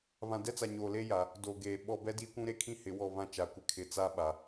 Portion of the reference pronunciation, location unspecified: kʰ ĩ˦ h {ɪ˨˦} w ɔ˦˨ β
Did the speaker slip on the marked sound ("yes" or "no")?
no